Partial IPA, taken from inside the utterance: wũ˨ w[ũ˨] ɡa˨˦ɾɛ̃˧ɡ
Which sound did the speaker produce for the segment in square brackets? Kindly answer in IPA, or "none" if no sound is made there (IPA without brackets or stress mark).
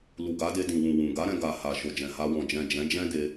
ũ˨